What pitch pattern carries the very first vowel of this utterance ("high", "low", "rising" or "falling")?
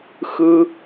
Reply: low